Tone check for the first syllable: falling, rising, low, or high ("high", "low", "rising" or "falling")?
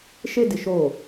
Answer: high